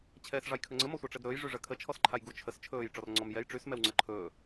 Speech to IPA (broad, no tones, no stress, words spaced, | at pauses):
t͡ɕʰɛːsʐɑjkʰɵŋ͡ǀə mɔsʷɑʈ͡ʂɛdɾɵːj ʐyʐɜkʰə t͡ʃʰɔsǃʰajɡu t͡ʃʰəs t͡ʃʰɵːj ʈ͡ʂɔrŋ͡ǀɔm jɛj ʈ͡ʂys mɛwŋ͡ǀɜǃʰɵː